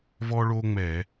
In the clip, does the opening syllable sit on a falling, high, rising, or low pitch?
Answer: high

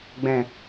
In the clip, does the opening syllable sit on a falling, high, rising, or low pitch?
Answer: low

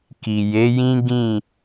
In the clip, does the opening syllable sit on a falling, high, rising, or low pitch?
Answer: low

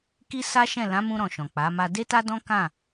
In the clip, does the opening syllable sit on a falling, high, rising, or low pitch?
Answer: high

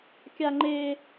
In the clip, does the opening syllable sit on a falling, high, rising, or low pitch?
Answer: high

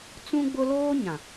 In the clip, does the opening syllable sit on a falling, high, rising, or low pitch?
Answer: high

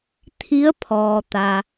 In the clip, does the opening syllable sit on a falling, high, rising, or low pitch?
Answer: rising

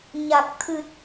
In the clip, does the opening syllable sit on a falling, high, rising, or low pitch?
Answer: low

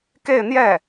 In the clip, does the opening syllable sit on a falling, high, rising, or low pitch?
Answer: falling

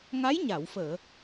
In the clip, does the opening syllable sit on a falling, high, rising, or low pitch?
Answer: rising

